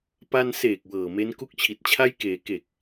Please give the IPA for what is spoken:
p a˧ n s eː˨˩ k̚ w ɤː˨˩ m e˦˥ n k u˥˩ k̚ t͡ɕʰ i˨˩ t̚ t͡ɕʰ a˥˩ j k eː˩˦ k e˨˩ k̚

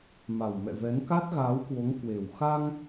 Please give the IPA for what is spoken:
m a˨˩ w m ɛ̰˧˨ v ɛ˨˦ n k a˦˥ t̚ ɣ aː˨˦ w k w o˨˦ ŋ k w e˨˩ w x a˧ ŋ

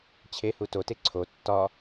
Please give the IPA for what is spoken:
t͡ɕʰ e h u t o t e ǀʰ o tː ɒ

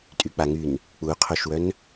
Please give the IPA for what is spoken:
tʼ y k͡p a ŋ y n | k͡p u qʰ o ʃ w œ n

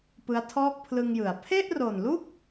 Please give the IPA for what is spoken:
p ɯ˦˥ a̯ tʰ ɔː˥˩ k̚ pʰ l ɯ˧ ŋ j ɯ˩˦ a̯ pʰ e˥˩ ʔ r o˨˩ n l u˥˩ k̚

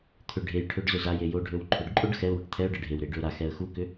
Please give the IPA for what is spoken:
t̪ʰ ʏ ɖʱ e j ʈʰ ø ɖ z ʏ z a j e j o ɖʱ ø w ǃʰ ʏ ɖ ǃʼ o ɖ x ɛ ʊ̯ w ʏ ʈ t̪ʰ ɛ ʊ̯ ɖ ə ɖʱ e w ɾ e ɖ ʏ ʊ̯ ɾ a x ɛ ə̯ x u k ʏ

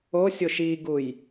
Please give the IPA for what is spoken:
o sʲ o ʃ i ɡ u j

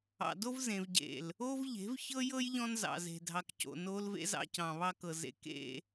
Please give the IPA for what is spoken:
ɑ̰˨ d o˦ v z ẽ˨ v ɟ ḛ˨ l | o˦ v ʎ e̤˨˦ v ç ɤ˦ j ɤ˦ j ʎ ɔ̃˦ n z ɑ̰˨ z e̤˨ dʱ ɑ˨ k c o̰˨ n oː˦ l v ḛ˦ z ɑ̰˦ c ɑ̃˨ β ɑ˦ k ɤ˨ z ḛ˨ k ḛ˦

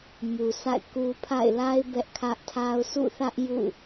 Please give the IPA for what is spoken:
m u˨ s a̰˦˨ ɪ̯ k u˦ pʰ a̰˦˨ ɪ̯ l a˦ ɪ̯ b ɛ˦ ʔ kʰ ä˦ ʔ tʰ a˦ ʊ̯ s ṵ˦˨ θ ä˦ ʔ j ṵ˦˨

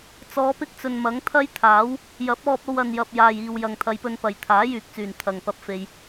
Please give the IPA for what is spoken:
t͡s ɔː˨˧ p ɪ˥ k̚ t͡s ɵ˨ n m ɐ˨˥ ŋ t̪ʰ ɐ˥ j t̪ʰ aː˨˥ w | j ɐ˨˥ p̚ ɔː˧ p̚ o˧ w ɐ˨ n j ɐ˨ p̚ j aː˨ j iː˨ w j ɐ˨ ŋ t̪ʰ ɐ˨˧ j p ɵ˧ n p ɐ˨ j t̪ʰ aː˨˥ j yː˨ k̚ t͡s yː˨˩ n t̪ʰ ɐ˨ ŋ p ɐ˧ p̚ f e˧ j

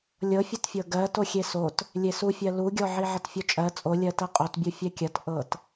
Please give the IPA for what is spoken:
lʲ ɤ fʲ o t fʲ ɤ ɡ ɜ t o xʲ e s o t | lʲ e s u fʲ ɜ l u ɡʲ ɔ ʕ i ʕ ɐ t fʲ o t͡ʃʼ ɜ t͡sʼ o lʲ ɜ t ɜ qʼ o t bʲ u fʲ ɛ kʲ ɐ t ʔ ɤ t

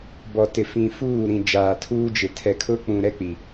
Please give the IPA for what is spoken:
b ɔ˨ t ɪ˨ f ĩ˨ f uː˦˨ ɾ ĩ˨ d͡ʒ aː˨ tʰ uː˦ d͡ʒ ɪ˨ tʰ ɛ˨ kʰ ʊ˦ k͡p ũ˨ ɾ ɛ˦ k͡p i˨

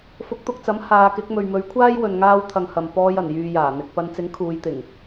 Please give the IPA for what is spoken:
f ʊ˨˥ k̚ t̪ ʊ˨ k̚ t͡s ɐ˨˥ m h aː˨˧ k ɪ˨˥ k̚ m ɵ˨ ɥ m ɵ˨˥ ɥ kʷʰ aː˥ j w ɵ˨ n ŋ aː˧ w t̪ʰ ɐ˨ ŋ h ɐ˨ m p ɔː˧ j ɐ˨˩ n j yː˨ j aː˨˩ n̪ ɪ˨ k̚ p ɐ˨˧ n t͡s ɪ˨˥ ŋ kʰ uː˨˧ j t̪ ɪ˨˩ ŋ

